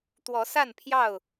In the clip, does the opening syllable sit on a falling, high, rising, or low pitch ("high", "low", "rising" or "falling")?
rising